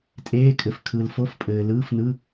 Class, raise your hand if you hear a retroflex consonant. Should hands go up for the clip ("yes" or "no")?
no